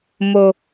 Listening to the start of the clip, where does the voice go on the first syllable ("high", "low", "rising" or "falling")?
low